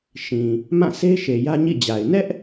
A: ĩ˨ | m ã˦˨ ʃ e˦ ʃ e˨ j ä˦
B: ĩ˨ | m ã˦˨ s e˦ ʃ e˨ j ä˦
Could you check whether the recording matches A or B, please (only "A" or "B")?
B